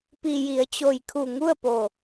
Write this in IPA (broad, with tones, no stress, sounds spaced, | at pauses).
p i˩ j i˩˧ ə̯ t͡ɕ o˩ j kʰ u˧˩ ŋ u˥˨ ə̯ p o˧˩